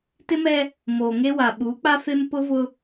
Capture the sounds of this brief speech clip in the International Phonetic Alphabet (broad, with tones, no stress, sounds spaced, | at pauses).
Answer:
t ɪ˦ m ɛ˦ | m oː˨ ŋ e˦ w a˨ ɓ uː˨˦ k͡p a˦ f e˦ m p ʊ˦ v ʊ˦